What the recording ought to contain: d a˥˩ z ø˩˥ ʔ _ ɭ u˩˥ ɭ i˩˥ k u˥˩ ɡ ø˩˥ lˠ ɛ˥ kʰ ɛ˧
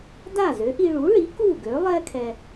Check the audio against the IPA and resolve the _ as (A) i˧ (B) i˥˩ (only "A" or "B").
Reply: A